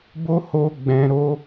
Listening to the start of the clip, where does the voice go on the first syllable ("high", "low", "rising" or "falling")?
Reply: high